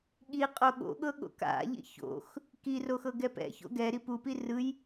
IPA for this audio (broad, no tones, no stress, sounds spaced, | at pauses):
ɠ i qʼ o ɠ o̰ ɠ ɤ ɠ o̰ k a̰ ʎ ḭ ç o̰ x | k i r o x ɤ ɡ ɛ p ɛ̰ ç o̰ ɡ ɛ ɾ i p u p i r ɯ j